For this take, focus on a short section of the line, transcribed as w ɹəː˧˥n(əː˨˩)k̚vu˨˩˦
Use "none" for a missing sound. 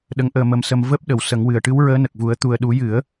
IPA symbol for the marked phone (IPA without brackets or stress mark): ə˨˩